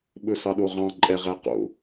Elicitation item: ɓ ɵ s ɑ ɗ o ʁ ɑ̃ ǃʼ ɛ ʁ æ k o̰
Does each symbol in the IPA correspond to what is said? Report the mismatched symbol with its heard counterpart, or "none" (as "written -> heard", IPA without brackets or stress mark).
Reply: k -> q